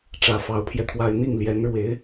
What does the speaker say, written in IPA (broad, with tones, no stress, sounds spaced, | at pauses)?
ʈ͡ʂ ä˨˩ f ɑ˧˥ ʊ̯ pʰ j ɛ˧ t̪ʰ w a˥ ɪ̯ n̪ i˥˩ ŋ l j ɛ˧˥ n ɻ w e˧˥ ɪ̯